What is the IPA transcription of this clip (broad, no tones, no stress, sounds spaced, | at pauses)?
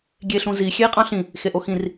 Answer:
ɡʲ e ɬ ũ z i xʲ e i̯ qʼ ɑ̃ ɬ ĩ | x e ʔ o x ĩ r